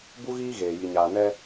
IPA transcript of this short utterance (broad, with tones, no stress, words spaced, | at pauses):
bu˦ɣiː˦ɣeː˨ ji˨ɲaː˨nɛ˦